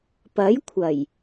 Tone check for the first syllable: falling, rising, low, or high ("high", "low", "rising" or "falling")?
rising